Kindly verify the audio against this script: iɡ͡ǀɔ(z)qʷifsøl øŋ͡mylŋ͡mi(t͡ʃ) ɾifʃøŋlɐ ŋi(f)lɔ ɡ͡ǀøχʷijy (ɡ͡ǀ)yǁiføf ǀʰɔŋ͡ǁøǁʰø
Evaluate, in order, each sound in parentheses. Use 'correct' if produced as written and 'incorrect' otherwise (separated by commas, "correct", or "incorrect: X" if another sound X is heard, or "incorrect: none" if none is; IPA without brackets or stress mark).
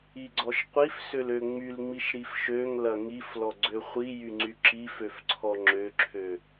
incorrect: ʃ, incorrect: ʃ, correct, incorrect: ŋ͡ǀ